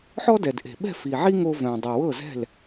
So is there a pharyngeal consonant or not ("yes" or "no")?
yes